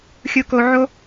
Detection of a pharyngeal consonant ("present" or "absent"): present